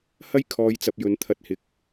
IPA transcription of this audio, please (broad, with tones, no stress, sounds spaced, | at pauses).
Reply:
h ɐ˥ j kʰ ɔː˨ j t͡s ɐ˨ p̚ j ɵ˨˧ n t̪ʰ ɐ˧ t̚ h ɪ˨˥ k̚